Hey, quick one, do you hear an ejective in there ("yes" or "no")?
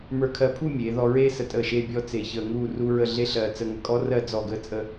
yes